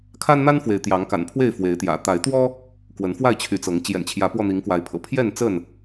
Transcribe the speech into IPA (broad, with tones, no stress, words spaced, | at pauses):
kʰa˦nn̪a˦nfwe˨˦ɪ̯ t̪jɑ˨˦ŋ ka̰˨˩npʰwe˥˨ɪ̯ fwe˨˦ɪ̯t̪jä̰˨˩ t̪a˨˦ɪ̯t̪wɔ˦ | kwə˨˦nfwa˥˨ɪ̯t͡ɕʰy˨˦t͡sɤ˨˦ŋ t͡ɕjɛ̰˨˩nt͡ɕʰjä˨˦pwɔ˧n̪i˨˦ŋ kwa˨˦ɪ̯pʰɤ̰˨˩ pʰjɛ˥˨nt͡sə˥˨n